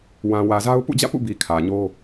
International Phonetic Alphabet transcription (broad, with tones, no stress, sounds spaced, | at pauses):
w ã˨ w ä˨ z a˦ ʊ̯ p ṵ˦˨ d͡ʑ ä̰˦˨ p ṵ˦˨ b i˨ kʰ ä˨ ɲ o˦